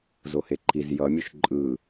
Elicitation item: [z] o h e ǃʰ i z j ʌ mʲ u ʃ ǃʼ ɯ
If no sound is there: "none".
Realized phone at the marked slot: z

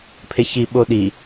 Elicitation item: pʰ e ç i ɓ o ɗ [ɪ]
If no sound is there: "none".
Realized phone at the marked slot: i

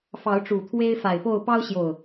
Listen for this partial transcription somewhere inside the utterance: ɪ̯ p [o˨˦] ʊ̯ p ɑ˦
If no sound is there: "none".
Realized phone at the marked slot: o˥˨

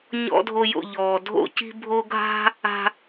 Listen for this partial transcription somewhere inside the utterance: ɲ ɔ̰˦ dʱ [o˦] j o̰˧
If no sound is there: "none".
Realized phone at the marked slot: o˦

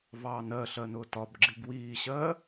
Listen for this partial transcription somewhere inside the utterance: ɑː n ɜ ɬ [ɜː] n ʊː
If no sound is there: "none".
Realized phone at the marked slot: ɜ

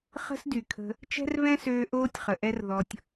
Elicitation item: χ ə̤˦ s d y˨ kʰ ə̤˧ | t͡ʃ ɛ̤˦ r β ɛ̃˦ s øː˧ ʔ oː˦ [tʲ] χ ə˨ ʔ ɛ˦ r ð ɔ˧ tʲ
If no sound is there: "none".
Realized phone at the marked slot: tʲ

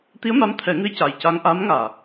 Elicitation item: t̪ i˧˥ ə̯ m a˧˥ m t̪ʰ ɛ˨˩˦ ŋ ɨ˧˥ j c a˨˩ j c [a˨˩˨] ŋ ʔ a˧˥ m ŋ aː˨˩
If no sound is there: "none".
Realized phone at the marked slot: a˧˥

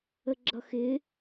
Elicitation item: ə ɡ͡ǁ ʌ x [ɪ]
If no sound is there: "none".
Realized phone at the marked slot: ɪ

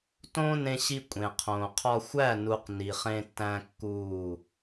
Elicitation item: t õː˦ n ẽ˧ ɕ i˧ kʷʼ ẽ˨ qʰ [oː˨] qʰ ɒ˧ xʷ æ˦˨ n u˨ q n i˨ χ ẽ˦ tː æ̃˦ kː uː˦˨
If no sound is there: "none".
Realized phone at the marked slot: õː˨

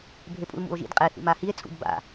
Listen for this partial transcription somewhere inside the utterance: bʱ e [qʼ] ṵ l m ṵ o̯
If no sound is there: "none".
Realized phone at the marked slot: pʼ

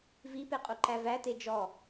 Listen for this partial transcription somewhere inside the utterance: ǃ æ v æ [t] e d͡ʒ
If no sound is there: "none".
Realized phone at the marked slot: t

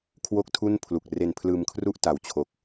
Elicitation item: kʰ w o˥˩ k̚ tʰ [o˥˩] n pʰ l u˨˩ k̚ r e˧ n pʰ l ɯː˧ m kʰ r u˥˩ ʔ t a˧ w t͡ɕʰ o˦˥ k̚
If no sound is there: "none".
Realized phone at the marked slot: u˥˩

